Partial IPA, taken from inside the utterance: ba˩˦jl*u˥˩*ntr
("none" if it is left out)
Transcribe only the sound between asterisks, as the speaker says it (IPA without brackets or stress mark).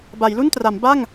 u˥˩